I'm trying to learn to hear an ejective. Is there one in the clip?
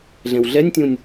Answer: no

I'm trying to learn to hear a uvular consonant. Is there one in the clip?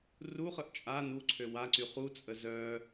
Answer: yes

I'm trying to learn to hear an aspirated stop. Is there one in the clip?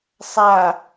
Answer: no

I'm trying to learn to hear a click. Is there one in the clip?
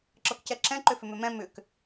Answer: yes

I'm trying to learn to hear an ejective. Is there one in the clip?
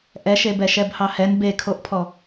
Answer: no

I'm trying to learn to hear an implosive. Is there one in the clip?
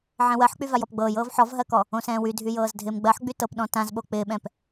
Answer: yes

